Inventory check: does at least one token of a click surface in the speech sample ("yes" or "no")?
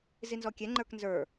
yes